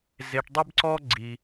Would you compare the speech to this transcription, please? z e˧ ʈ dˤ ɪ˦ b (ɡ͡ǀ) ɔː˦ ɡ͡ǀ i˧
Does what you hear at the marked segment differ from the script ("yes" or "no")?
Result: yes